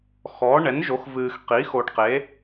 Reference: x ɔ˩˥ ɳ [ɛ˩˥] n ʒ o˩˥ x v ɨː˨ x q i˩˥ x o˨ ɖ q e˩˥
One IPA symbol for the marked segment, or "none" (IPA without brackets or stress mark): ɛ˩˥